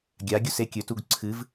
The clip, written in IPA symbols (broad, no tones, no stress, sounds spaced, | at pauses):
ɡʲ a ɡʲ u s e kʲ ɵ t u ɡ ǀʰ ɨ v